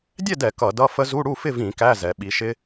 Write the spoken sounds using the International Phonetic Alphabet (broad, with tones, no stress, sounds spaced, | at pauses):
dʲ ɛ˥˨ d ɛ˧˩˧ k ʌ˧˩˧ d ʌ˧˥˧ f ə˦˥ z u˧˥˧ ɽ u˥˨ f ɪ˥˨ v ĩ˧˩˧ k æ˧˥˧ z ɛ˩˧ ɓ i˩˧ ʃ ɪ˦˥